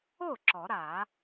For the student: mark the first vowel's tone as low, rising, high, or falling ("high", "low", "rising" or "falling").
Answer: falling